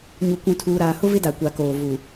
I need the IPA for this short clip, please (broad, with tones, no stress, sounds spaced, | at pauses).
ɲ u˨ kʷ ũ˨ tʰ uː˨ ɾ aː˨ h ʊ˦ v ɪ˦ d a˨ kʷ a˨ k oː˨ v u˨